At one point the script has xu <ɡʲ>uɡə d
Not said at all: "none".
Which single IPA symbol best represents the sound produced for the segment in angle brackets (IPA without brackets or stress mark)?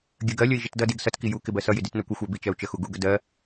ɡ